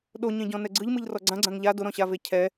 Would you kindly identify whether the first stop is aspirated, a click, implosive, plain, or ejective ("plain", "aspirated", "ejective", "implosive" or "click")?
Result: implosive